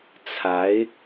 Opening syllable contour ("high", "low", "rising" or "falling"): rising